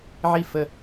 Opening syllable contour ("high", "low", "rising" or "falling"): falling